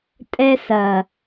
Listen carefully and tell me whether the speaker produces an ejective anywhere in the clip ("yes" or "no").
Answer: yes